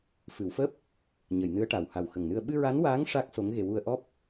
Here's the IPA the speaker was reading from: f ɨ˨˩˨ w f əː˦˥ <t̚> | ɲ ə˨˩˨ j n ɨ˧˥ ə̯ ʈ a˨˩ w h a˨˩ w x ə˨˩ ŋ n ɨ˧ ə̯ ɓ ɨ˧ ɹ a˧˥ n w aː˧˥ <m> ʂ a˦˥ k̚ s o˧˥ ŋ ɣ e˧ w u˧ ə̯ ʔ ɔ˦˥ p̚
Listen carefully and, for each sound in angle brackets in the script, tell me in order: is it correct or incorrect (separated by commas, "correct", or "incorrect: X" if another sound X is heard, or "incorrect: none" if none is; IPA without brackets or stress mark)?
incorrect: p̚, incorrect: ŋ